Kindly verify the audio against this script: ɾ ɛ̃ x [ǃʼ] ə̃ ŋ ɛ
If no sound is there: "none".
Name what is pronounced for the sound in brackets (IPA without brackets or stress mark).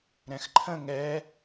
ǃʰ